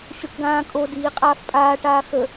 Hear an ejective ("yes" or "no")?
yes